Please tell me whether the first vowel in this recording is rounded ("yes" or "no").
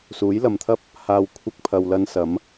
yes